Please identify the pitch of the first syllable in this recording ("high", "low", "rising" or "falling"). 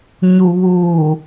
low